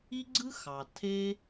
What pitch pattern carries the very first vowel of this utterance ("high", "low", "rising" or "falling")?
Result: high